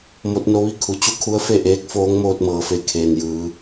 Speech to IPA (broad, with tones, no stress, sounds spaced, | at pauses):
m o˧˥ t̚ n o˧˥ ʋ i˥˨ kʰ u˩˧ t͡ɕ u˧˥ kʰ u˧˥ ə̯ f e˥˨ ʔ eː˧˥ k̚ f oː˧˥ ŋ m oː˧ t̚ m ɤː˩ f e˧˩ kʰ eː˩ n j ɯː˩˧